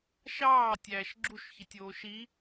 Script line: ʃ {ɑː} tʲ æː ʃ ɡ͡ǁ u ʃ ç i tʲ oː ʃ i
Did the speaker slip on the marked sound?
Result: no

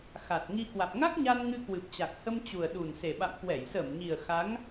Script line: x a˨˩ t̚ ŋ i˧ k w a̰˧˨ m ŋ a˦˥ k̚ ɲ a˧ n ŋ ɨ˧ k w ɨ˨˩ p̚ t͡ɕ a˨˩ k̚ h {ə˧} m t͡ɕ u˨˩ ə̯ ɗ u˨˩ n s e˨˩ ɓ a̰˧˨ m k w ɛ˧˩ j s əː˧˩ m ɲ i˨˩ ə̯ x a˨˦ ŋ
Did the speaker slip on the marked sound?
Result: no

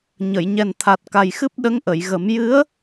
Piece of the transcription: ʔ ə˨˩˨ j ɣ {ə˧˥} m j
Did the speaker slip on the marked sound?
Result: yes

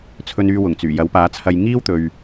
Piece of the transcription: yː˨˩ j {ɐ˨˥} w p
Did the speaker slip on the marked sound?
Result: no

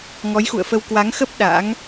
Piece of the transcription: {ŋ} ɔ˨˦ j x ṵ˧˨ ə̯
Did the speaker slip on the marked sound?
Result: no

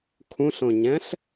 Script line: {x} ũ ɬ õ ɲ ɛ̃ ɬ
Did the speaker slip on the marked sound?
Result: yes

